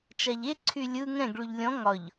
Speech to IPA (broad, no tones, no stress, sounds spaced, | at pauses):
t͡ʃ a ʎ e ǀʰ y lʲ ɯ ŋ ɛ̃ ɡ ɭ y ʎ lʲ ɔ̃ ŋ ɒ ʎ